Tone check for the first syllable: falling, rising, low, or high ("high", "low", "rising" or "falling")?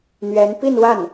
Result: rising